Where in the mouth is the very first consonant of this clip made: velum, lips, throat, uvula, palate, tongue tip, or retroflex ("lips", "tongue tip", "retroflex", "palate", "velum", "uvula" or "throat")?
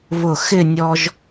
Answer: lips